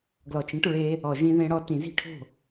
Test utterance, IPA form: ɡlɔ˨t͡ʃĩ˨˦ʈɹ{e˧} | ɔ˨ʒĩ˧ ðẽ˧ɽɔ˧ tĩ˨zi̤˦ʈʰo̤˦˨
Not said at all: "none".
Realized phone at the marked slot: e˧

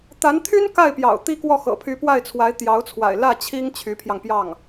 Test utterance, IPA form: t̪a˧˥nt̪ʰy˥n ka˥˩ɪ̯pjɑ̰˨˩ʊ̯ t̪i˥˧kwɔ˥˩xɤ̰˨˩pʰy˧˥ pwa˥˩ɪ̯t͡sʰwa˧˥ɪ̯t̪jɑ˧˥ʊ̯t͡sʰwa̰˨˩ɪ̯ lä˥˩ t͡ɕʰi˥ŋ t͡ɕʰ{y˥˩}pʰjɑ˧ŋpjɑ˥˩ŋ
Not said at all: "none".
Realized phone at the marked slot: y˧˥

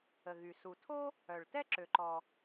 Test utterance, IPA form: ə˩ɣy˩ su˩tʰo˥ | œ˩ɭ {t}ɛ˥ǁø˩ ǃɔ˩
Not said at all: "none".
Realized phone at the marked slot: t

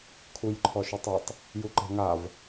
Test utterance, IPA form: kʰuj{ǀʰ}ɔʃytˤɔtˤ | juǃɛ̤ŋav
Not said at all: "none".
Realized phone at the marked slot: ǃʰ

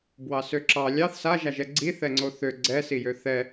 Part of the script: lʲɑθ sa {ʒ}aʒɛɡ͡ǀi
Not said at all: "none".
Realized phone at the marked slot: ʒ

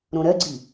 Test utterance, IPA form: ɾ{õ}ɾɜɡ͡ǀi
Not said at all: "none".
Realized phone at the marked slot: õ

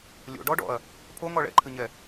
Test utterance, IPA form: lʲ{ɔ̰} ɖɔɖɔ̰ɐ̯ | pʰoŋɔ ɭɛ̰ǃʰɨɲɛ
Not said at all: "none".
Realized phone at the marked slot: o̰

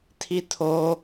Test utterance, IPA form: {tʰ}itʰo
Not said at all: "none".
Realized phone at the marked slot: tʰ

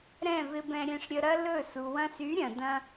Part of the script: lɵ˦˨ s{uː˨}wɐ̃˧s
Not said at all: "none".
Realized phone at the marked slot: u˨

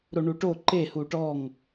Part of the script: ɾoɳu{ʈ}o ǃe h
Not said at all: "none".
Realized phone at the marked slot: ʈ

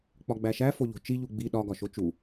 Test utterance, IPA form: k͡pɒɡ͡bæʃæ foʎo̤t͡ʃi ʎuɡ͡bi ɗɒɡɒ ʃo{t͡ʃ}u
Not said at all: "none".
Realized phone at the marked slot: t͡ʃ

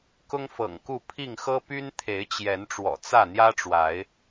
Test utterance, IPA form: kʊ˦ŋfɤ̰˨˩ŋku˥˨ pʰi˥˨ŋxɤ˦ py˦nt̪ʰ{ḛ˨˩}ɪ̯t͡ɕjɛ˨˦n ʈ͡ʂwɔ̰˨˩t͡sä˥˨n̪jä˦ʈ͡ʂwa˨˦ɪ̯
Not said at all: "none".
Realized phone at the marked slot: e˨˦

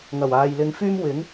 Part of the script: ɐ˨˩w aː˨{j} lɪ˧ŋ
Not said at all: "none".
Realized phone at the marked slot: j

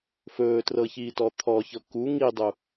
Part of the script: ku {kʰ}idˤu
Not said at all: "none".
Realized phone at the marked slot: ŋ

